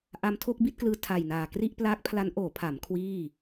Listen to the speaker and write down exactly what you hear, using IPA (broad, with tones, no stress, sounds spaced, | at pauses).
ʔ a˧ m tʰ o˥˩ k̚ b i˥˩ t̚ k l ɯː˧ tʰ a˨˩ j n aː˨˩ k r i˥˩ ʔ p l aː˦˥ k̚ pʰ l a˦˥ n ʔ oː˩˦ pʰ a˩˦ m kʰ w iː˥˩